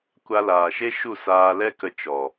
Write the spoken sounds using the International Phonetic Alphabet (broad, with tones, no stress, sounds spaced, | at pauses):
kʷ a˧ l aː˨ ʃ e˦ ʃ u˦˨ s aː˧ l ɛ˦ k ə˧ t͡ʃ ɔ˨